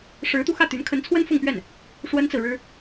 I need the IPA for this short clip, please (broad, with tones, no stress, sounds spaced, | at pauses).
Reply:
ʂ ɻ̩˧˥ t̪ u˧ x ä˥˩ t̪ y˧˥ n kʰ ə˧˥ n t͡sʰ w ə˥ n f ʊ˥˧ ŋ p ɥ ɛ˥˩ n | ʂ w ə˥ n t͡s ɹ̩˨ ɻ ɻ̩˥